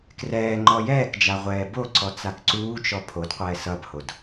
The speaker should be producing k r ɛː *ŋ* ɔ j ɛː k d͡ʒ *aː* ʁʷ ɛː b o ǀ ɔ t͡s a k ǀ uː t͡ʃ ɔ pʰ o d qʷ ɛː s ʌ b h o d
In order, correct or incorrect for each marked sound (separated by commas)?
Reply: incorrect, incorrect